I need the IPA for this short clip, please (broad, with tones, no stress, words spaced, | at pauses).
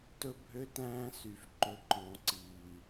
tɵ˦bʱø˦tæ̃ː˦sy˨f ǃɵ˨ǃɔ̃˨ǀiː˨